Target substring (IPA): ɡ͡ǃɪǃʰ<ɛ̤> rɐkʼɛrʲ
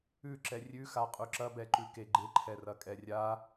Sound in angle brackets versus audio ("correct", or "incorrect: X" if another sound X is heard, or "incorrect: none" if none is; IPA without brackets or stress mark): incorrect: ɛ